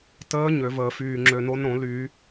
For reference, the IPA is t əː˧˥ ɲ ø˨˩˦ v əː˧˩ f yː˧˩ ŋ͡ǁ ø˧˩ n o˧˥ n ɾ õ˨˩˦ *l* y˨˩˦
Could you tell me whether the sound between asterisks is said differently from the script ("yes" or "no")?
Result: no